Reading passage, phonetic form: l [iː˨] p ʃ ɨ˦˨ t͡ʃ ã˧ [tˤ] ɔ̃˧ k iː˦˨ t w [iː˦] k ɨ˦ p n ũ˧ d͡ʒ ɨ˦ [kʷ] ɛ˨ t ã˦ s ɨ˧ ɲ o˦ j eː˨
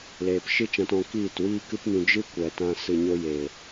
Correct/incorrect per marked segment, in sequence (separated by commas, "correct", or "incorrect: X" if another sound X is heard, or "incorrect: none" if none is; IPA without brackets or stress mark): incorrect: eː˨, incorrect: t, correct, correct